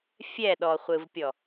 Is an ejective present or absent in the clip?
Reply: absent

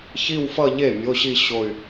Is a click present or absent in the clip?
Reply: absent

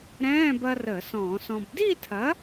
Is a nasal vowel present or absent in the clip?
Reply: present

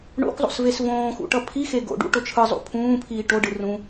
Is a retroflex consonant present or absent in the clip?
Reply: present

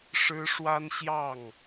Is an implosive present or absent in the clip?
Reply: absent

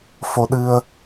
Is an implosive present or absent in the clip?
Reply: present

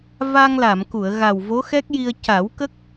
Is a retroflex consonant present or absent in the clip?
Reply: absent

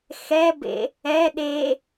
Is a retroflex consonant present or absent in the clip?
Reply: absent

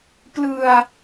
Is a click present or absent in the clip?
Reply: absent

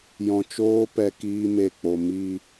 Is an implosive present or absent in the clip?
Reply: absent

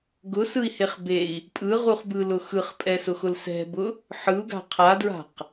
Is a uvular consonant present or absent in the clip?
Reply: present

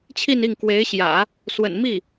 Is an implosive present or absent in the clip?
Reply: absent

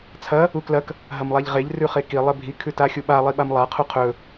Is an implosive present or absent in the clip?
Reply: present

